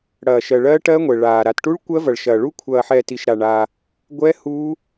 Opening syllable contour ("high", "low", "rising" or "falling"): low